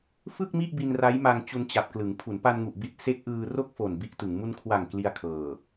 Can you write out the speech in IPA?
f ɯ˥˩ k̚ m i˥˩ ʔ b i˧ n r a˦˥ j m a˧ ŋ t͡ɕ u˧ n t͡ɕ a˨˩ p̚ k l ɯ˩˦ ŋ pʰ u˩˦ n p a˧ n ŋ u˨˩ ʔ b i˦˥ t̚ s e˦˥ k̚ ʔ ɯː˧ r o˥˩ k̚ f o˨˩ n b i˦˥ ʔ t ɯ˩˦ ŋ m u˧ n kʰ w a˨˩ ŋ k l i˧ a̯ kʰ ɤː˨˩

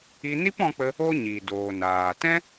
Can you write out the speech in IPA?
i˧ n i˦ p ɔ̃˧ k͡p ə˧ | o˦ ɲ i˨ d oː˨ n aː˨ t ɛ̃˦

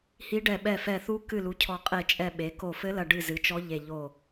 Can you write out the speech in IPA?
h i˧˥ ɖ ɛ˧˩ ɓ ɛ˧˩ f ɛ˧˩ θ u˧˥ k ɨ˧˩ l u˩˧ cʰ ɔ˧˩ qʼ e˧˩ t͡ʃʼ ɛ˧˩ ɓ e˩˧ k o˧˩ f ɘ˧˥ l ɐ˧˩ ɖ ɨ˧˩ z ɨ˩˧ t͡ʃ ɔ˧˥ ʎ e˧˩ ʎ o˧˩

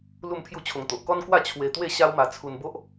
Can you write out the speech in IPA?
l u˥˧ m pʰ j u˥˧ t͡ɕʰ o˧ ŋ t̪ o˨ ʔ k ɔ˦ n k w a˥˧ t͡ɕʰ w e˧ t̪ w e˥˧ ɕ a˦ w m a˧ t͡sʰ u˧ n b o˦ ʔ

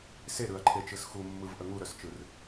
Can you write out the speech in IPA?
s e ɾ ɯ ɐ̯ ǃʰ e t͡ʃ ɯ s x u mː ɯ v ʔ ə ŋ u ɾ œ s t͡ʃ ɯ r

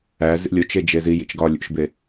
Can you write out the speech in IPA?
æ z ḭ lʲ o t͡ʃ e d͡ʒ e z i j ḭ t͡ʃ ɡ ɒ lʲ ṵ ʃ b e

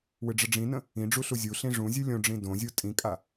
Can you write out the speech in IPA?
w ɨ ɖ͡ʐ ə ɖ͡ʐ ĩ n ə̃ | ĩ ɖ͡ʐ u ɬ u zʲ u ɬ ĩ ʐ ũ zʲ ɨ lʲ õ ɖ͡ʐ ĩ d õ zʲ u tʼ ĩ kʼ a

